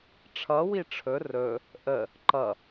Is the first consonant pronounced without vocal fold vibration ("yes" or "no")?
yes